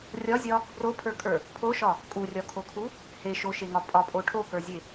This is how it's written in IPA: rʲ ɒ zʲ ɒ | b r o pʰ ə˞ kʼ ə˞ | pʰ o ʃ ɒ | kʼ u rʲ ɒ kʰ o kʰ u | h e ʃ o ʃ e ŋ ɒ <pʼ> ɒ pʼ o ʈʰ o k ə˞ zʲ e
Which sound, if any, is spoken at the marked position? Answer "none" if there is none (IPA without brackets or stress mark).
pʼ